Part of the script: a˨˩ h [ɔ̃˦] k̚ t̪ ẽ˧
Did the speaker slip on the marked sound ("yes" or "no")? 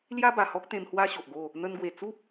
yes